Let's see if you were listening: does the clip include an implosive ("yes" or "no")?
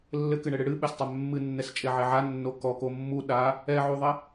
yes